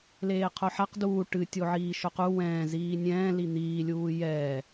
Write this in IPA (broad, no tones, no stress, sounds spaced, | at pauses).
l eː qʰ o ħ a q d uː ʈ ɨ tʲ o ʕ iː ʃ o q u w ɛ̃ː z iː nʲ ɛ̃ː l i n̪ iː lʲ uː j ɛː